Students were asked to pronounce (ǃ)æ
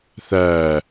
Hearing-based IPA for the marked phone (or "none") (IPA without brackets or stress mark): θ